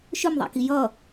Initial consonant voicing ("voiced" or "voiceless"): voiceless